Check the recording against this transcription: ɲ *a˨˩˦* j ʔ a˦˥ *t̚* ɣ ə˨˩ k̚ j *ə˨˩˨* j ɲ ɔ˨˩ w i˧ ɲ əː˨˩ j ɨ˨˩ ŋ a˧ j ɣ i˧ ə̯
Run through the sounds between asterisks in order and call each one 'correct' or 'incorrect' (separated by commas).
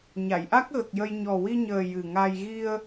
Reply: incorrect, incorrect, incorrect